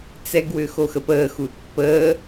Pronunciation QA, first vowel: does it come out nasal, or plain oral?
oral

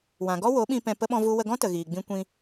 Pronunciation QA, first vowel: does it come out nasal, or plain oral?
nasal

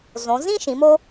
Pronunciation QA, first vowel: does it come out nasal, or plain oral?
nasal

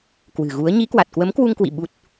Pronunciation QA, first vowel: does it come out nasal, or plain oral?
oral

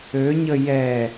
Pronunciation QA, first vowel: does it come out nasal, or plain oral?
oral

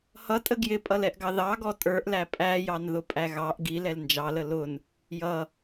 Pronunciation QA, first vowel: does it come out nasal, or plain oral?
oral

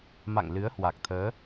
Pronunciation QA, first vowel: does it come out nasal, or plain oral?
oral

